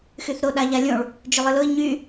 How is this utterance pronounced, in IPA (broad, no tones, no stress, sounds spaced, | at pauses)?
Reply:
x y θ ɾ o ɗ a ʎ a lʲ õ ɭ | d͡ʒ ʏ lˠ ɨ l ʊ i̯ ɲ y